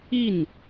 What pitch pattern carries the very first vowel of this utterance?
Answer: falling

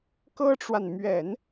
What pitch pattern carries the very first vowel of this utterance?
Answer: high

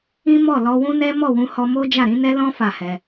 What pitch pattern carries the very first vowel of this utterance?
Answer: high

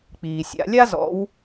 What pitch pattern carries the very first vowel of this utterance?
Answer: low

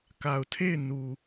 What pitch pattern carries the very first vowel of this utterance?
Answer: low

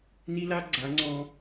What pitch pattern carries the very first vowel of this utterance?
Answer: high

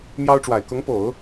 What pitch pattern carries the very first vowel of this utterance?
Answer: high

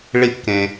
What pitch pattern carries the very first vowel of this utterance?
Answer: falling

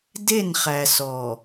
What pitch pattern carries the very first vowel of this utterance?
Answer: falling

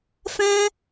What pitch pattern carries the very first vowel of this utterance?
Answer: high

